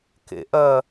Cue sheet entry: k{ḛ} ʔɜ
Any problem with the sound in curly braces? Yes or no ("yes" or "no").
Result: no